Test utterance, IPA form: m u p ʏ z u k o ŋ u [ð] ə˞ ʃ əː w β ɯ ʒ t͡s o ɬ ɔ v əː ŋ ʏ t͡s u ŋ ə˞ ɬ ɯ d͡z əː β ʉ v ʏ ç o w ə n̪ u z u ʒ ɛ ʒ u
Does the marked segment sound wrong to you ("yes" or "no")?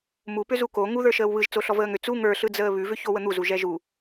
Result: no